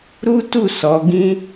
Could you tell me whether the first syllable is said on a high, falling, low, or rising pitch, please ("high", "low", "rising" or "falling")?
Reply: high